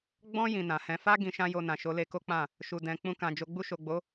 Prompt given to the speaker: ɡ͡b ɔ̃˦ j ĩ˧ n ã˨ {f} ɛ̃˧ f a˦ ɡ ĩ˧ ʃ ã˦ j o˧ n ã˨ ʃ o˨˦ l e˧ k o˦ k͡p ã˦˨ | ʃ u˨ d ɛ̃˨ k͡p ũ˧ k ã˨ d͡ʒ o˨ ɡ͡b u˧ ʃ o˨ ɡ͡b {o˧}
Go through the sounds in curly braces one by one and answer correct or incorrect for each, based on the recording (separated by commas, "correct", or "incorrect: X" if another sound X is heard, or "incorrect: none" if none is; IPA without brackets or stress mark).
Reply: incorrect: h, incorrect: o˨˦